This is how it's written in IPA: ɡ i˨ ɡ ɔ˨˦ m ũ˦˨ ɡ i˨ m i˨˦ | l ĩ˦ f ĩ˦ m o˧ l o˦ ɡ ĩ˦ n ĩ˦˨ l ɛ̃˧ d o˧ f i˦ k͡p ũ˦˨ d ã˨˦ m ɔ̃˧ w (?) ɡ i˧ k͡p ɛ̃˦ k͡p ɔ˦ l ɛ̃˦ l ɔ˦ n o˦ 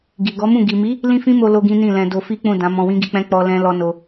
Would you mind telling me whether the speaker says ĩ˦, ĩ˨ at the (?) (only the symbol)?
ĩ˦